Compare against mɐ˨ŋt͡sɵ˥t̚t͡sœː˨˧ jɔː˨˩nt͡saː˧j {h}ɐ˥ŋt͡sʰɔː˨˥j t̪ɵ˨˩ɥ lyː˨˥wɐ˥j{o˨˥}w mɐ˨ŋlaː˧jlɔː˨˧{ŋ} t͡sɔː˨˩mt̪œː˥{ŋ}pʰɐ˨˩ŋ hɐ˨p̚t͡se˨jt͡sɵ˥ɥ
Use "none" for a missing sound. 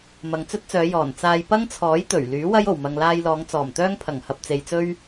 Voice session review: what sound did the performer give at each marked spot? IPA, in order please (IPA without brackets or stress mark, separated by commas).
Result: p, o˨˩, ŋ, ŋ